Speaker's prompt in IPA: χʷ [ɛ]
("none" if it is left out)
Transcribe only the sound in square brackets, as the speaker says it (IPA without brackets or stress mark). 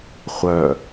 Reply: œ